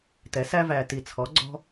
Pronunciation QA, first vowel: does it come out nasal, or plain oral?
oral